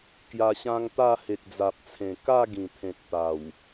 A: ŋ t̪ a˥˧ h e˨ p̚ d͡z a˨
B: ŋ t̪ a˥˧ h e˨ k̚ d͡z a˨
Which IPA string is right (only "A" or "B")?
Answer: B